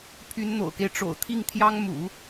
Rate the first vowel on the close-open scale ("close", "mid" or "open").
close